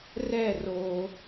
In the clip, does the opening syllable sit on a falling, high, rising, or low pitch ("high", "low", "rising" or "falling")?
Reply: falling